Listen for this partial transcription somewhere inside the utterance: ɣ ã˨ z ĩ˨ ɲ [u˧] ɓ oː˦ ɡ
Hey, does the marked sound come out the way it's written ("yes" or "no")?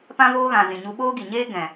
yes